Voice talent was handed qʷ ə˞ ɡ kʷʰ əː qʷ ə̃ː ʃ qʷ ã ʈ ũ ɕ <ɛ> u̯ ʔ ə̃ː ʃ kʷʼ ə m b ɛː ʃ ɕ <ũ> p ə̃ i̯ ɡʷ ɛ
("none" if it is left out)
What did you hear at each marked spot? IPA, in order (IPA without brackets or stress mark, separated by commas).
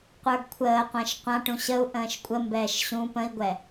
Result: ə, ũ